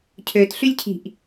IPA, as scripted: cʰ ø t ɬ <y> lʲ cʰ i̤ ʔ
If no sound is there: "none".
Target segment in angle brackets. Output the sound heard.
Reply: y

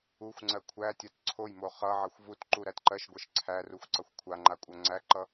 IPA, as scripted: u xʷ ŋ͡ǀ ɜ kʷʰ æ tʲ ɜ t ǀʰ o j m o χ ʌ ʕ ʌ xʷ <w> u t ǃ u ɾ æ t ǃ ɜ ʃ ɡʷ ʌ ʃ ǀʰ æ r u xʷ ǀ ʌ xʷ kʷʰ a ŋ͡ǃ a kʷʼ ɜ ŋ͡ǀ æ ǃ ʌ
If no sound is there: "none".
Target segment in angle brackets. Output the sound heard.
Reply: v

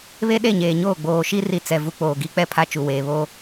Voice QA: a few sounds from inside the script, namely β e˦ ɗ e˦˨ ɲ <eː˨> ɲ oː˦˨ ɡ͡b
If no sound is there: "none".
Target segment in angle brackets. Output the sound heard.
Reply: eː˨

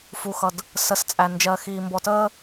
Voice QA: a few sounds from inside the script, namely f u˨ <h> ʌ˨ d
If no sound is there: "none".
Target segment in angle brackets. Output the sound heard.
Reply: x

